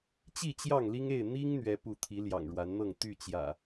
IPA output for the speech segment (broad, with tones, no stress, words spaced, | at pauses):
t͡ɕi˥˨t͡ɕjɑ˥˨ŋli˦ŋe˥˨ɪ̯ n̪i˦ŋ n̪ɥɛ˦pu˥˨ t̪ʰi˨˦ljɑ̰˨˩ŋɻwa˨˦nn̪ɤ˥˨ŋ t̪y˥˨t͡ɕjä̰˨˩